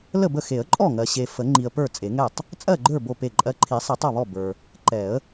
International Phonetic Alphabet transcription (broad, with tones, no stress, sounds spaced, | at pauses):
l ə˥˩ b ə˥˩ x e˨˩˦ ə̯ ǃʼ ɔ˥˩ ŋ ɜ˨ ɕ e˨ f ə˨˩˦ ŋ͡ǃ i˨ ə̯ p ə˞˥˩ t͡sʼ e˨˩˦ ŋ ɛ˥˩ tˤ | t͡sʼ ɜ˥˩ ɡ͡ǃ ə˞˥˩ b o˥˩ p e˥˩ ǃʼ ɜ˧˥ ǃʰ i˨˩˦ sˤ ɛ˨˩˦ tˤ ɔ˥˩ β ɔ˥˩ b ə˞˨ | ǃ ɛ˨˩˦ ə̯